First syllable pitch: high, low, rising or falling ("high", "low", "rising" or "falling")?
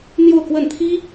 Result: falling